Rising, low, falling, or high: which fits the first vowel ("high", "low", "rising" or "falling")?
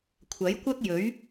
rising